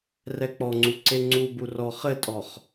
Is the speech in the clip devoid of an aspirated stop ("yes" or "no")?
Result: yes